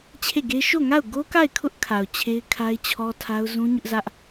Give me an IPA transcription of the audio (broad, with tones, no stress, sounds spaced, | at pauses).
t͡ɕʰ e˦˨ ɡ e˦ ʃ o˦˨ ŋ a˦˨ ʊ̯ ɡ o˦ k a˦˨ ɪ̯ kʰ ʊ˦ ʔ kʰ a˨ ʊ̯ t͡ɕʰ e˦ ɪ̯ kʰ a˦ ɪ̯ t͡ɕʰ ɔ˦ tʰ a˦ ʊ̯ z ũ˦ ɲ ʊ˦ ʔ z ä˦ ʔ